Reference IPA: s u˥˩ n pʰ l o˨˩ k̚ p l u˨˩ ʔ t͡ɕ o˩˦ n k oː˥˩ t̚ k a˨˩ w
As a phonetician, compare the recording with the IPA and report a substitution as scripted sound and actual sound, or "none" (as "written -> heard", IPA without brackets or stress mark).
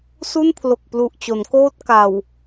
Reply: none